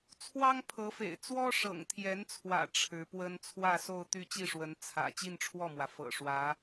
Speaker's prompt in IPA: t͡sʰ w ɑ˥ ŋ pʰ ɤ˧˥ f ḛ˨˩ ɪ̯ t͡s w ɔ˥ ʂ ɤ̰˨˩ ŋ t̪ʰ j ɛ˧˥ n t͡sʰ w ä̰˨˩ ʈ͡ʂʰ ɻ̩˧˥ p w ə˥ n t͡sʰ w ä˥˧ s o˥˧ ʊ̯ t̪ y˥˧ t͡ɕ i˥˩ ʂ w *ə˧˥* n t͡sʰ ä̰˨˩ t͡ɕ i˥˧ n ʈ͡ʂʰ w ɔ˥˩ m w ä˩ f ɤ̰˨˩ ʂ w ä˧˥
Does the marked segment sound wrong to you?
no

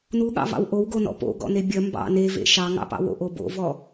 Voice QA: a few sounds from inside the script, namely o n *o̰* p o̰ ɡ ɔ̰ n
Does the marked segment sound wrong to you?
yes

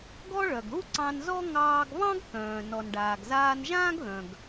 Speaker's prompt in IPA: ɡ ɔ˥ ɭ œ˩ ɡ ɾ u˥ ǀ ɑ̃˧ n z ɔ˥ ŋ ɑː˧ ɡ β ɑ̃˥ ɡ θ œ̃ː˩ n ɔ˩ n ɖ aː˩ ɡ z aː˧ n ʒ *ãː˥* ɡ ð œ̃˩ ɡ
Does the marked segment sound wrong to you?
no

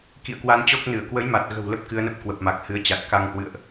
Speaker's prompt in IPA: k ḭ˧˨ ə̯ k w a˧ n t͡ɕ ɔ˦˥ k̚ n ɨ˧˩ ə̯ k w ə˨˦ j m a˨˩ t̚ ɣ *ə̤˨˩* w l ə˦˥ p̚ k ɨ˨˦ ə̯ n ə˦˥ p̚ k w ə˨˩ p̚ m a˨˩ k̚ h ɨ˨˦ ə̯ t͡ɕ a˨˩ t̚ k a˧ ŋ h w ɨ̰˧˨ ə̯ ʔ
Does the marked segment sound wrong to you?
no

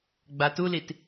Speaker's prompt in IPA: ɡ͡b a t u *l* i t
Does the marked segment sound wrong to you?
no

